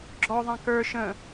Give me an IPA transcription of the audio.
ɡ͡ǁɔðˤã kə˞ ʃə̃

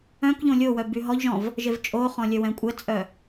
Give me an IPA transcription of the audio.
œ̃kʎõ lʲowœ byɦɔʎʒɔ̃v | ʒevt͡ʃʼoχɔ̃ lʲœwɛ̃kʷʼɛt͡sʼœ

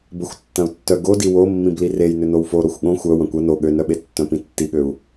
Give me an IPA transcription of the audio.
bəxʷtːɐ̃u̯tːœ ɡodi womːĩb lirejnʏ nowfo ɾoxʷɠõ xʷœ wɐ̃kʷɐ no ɠønœɓe tːœ̃pĩtːiɠøu̯

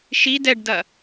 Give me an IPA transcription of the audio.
ʃi dɛɖdɐ

